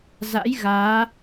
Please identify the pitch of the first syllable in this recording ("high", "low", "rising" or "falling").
rising